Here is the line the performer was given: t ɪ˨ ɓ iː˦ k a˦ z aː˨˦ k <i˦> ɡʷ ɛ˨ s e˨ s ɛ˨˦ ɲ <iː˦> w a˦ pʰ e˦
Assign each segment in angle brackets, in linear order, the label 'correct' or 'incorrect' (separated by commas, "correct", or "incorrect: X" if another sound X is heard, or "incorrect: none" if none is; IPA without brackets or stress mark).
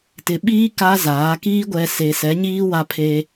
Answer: incorrect: iː˦, correct